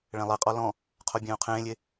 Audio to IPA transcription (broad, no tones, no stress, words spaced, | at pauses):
ɭɛ̃lˠɛqʼɔ lɔ̃ | qʰobʲẽːu̯qʰẽːlʲe